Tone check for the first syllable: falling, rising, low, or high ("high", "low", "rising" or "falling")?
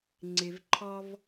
low